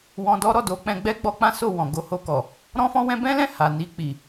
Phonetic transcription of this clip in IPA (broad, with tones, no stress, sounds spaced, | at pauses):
w ɔ̃˧ d ɔ˦ ɾ ɔ˦˨ d o˨˦ k͡p ɛ̃˧ ɡ͡b ɛ˦ ɡ͡b ɔ˦ k͡p ã˦ s o˦˨ w ɔ̃˨ ɡ o˧ h o˧ k ɔ˨ | ɾ ɔ̃˦ f ɔ̃˦ w ɛ̃˦ b ɛ̃˦ l ɛ̃˦˨ h a˨ n i˧ k͡p i˨